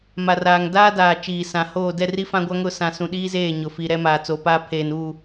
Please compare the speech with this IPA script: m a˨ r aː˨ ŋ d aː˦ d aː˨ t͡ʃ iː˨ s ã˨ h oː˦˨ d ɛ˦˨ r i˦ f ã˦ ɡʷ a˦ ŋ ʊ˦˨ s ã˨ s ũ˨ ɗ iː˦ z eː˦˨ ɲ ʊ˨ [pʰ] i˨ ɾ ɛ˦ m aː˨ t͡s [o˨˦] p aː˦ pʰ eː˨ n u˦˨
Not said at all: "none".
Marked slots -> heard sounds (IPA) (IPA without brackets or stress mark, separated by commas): f, o˨˦